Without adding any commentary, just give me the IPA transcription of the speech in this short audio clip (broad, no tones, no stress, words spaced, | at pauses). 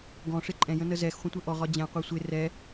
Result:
ɡɔ̃ʂɪ ǃʼɛ̃jə̃nə zɛxχʷə̃tʷə ʔɔʁɒ d͡ʑɛ̃qʷɑ sʷɪ rɛ